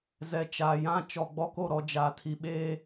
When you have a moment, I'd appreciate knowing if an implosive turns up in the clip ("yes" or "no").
yes